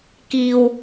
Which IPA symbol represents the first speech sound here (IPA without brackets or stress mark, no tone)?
k